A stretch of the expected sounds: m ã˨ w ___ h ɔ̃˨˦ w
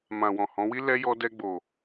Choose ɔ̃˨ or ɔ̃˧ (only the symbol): ɔ̃˨